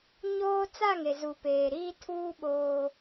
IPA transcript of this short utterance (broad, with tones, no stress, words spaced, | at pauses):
ɲoː˦ t͡sa˦˨ŋe˨zuː˨ peː˨ɾiː˦ tʰuː˦ ɓoː˦